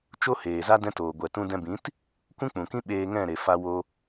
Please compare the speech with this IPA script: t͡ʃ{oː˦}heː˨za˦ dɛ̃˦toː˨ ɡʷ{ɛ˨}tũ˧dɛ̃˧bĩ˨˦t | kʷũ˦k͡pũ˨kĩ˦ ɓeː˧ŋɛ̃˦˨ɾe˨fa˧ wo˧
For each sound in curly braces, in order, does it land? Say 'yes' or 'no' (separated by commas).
no, yes